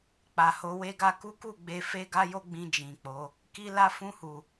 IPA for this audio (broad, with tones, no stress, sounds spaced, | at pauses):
k͡p a˨ h o˧ w e˧ ɡ a˧ k u˦ k u˦˨ ɡ͡b e˧ f e˦ ɡ a˦ j o˦ ɡ͡b ĩ˧ d͡ʒ ĩ˨ k͡p o˨˦ | k i˧ l a˧ f ũ˧ h u˨